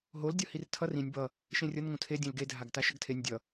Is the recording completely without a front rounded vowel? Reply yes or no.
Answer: yes